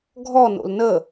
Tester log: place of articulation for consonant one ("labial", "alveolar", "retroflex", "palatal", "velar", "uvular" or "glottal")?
velar